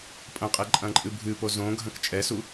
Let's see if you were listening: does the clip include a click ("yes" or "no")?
yes